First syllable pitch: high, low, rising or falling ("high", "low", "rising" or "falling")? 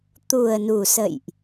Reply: low